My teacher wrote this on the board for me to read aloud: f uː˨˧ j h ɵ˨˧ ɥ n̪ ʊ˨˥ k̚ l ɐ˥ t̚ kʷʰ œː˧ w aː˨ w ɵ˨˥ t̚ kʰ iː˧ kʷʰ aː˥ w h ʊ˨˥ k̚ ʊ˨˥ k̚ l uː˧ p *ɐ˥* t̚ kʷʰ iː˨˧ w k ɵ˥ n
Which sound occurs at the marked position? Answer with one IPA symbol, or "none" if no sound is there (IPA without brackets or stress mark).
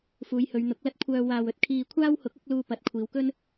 ɐ˨